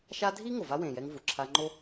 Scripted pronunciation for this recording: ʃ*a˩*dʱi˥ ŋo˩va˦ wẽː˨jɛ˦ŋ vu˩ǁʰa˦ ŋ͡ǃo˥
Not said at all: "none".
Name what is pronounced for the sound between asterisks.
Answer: a˦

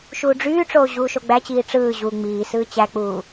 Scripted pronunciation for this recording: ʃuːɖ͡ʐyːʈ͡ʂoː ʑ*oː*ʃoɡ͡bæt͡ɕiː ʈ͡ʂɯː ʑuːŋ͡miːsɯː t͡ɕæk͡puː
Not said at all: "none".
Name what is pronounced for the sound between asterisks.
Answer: uː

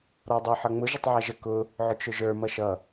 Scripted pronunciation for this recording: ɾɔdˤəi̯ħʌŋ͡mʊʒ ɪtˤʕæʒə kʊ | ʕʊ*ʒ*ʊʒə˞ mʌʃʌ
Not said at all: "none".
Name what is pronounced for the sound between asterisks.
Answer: t͡ʃ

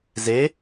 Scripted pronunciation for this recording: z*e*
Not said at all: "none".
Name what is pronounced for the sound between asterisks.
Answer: e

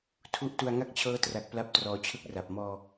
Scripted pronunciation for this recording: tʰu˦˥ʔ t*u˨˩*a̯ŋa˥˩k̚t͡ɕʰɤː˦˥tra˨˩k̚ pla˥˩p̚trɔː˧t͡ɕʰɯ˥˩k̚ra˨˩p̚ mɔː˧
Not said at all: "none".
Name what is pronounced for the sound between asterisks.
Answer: u˧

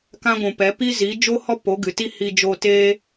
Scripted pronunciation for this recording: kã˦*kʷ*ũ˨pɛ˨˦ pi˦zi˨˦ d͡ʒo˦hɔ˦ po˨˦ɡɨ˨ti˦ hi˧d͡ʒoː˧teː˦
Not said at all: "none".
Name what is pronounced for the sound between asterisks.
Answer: ɡʷ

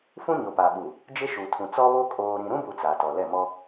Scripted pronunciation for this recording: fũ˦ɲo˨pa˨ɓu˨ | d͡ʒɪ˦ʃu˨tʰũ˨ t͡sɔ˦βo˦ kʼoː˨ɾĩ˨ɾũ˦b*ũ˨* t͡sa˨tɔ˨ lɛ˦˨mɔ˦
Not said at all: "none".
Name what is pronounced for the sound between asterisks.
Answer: u˨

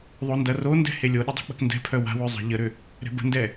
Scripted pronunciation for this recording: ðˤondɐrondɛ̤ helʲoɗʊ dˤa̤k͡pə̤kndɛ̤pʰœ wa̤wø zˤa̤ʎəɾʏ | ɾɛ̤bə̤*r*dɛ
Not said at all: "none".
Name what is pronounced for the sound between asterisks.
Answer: n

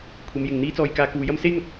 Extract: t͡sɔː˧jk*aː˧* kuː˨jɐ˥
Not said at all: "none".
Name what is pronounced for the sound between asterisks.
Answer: aː˧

